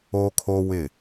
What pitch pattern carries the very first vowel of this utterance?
high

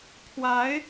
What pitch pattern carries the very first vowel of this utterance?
rising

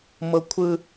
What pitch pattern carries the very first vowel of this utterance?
high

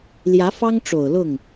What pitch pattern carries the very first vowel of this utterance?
rising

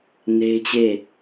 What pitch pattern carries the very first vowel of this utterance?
high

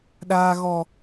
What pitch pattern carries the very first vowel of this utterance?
low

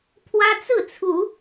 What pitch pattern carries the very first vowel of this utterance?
high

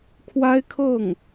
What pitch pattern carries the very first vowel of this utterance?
high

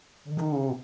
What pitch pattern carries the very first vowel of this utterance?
falling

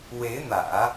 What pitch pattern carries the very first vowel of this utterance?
rising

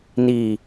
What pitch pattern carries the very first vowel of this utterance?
low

